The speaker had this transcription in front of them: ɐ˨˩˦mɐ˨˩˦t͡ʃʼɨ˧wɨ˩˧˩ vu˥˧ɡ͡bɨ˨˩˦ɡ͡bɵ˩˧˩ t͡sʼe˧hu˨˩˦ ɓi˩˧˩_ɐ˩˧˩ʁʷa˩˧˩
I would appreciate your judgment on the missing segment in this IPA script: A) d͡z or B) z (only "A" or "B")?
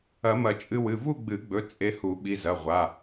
B